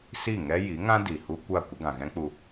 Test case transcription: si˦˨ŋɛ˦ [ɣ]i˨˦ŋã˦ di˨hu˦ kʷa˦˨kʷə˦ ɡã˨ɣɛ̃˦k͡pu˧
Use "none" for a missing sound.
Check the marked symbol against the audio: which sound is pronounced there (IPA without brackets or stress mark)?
j